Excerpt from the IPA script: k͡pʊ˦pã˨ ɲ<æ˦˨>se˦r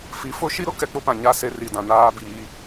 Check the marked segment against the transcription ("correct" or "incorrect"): incorrect